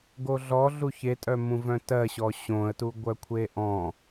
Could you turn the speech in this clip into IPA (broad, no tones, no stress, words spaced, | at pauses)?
ɡoɮɔ ɮuçetʼœmũ vœ̃tɜɕɔ ɕõə̯tu ɡʷœkʷʰeʔɔ̃